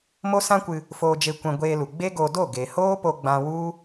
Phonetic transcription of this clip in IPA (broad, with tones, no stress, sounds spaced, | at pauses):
m o˦ s ã˦ kʷ ɨ˧ | f oː˧ d͡ʒ e˧ kʷ ɛ̃˧ ɡʷ eː˧ l u˨ ɡ͡b e˦ ɡ o˧ d o˦˨ ɡ e˨ h oː˦ p o˧ ɡ͡b ã˧ w u˦